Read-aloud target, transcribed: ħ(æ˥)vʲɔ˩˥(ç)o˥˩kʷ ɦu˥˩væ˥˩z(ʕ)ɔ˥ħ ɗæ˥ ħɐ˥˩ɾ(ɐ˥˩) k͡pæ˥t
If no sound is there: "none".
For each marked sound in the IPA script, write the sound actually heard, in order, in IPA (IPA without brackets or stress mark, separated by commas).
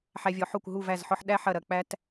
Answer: æ˧, ħ, ħ, ɐ˥˩